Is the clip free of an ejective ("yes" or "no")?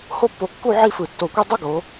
yes